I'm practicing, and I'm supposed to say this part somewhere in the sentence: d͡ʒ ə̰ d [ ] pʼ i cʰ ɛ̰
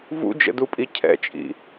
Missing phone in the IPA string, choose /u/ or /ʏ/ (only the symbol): u